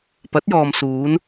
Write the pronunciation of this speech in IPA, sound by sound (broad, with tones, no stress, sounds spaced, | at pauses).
p ɐ˨˥ t̚ j ɔː˨ m s uː˨˧ n